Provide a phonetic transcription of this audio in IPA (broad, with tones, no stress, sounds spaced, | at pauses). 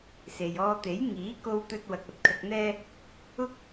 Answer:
s e˨ j ɔː˧ t̪ e˨˥ j ŋ iː˨˥ k o˧ w t̪ ɵ˧ t̚ w ɐ˧ k̚ ɐ˧ t̚ kʰ ɐ˧ k̚ n̪ ɛː˥ | ʊ˧ k̚